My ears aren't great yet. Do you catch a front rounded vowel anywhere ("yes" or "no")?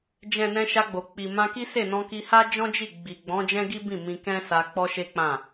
no